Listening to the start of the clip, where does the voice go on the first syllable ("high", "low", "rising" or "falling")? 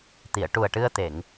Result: low